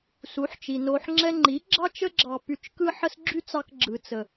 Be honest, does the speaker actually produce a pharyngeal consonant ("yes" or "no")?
yes